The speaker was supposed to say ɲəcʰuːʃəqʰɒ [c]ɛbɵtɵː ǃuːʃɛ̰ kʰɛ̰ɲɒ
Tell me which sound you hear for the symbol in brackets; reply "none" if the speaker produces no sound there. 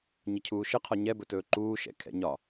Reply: ɲ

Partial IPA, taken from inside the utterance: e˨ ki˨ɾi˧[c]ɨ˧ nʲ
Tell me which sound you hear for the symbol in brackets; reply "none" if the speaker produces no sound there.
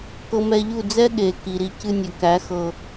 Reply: c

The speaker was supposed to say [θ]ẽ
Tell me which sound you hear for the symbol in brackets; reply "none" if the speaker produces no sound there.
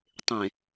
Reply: tˤ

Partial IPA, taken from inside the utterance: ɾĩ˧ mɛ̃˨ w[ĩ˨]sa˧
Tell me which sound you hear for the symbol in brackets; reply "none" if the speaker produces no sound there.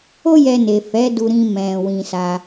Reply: ĩ˧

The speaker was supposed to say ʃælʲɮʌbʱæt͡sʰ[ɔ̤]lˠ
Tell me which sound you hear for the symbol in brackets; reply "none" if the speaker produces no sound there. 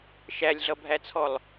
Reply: ɔ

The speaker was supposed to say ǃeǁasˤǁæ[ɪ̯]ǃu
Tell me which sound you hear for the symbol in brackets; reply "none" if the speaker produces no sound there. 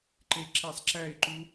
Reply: ɪ̯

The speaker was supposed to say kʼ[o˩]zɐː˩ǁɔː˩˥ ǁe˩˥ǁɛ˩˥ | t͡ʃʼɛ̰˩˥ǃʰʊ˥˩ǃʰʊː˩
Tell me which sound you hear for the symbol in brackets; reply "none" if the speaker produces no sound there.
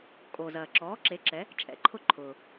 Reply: o˩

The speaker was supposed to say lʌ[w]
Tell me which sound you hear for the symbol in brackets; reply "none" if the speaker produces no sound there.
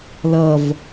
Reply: v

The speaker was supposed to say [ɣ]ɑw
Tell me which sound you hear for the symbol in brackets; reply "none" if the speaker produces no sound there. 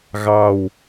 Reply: ɣ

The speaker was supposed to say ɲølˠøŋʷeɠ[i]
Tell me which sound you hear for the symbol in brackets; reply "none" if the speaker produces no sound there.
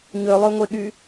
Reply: y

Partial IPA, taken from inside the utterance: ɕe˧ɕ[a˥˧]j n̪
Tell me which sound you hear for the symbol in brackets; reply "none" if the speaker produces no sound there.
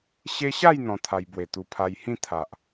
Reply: a˥˧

